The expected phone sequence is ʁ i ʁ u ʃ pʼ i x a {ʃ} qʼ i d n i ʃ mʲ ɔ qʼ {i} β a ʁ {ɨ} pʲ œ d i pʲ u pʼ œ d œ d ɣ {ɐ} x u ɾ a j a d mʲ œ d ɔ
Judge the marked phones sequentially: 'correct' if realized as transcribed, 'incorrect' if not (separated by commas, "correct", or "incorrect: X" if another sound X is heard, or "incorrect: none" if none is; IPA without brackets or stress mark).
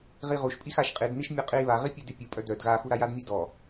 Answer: correct, correct, incorrect: i, incorrect: a